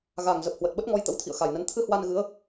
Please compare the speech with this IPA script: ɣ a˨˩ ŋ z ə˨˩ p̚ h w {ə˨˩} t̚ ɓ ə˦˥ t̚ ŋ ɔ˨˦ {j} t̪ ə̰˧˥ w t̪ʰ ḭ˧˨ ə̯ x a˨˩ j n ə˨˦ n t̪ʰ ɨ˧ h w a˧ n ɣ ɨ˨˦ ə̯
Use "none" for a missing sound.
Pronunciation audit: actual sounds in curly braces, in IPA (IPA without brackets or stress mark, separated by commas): ə˨˩, j